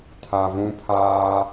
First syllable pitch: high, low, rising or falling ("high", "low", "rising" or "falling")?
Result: low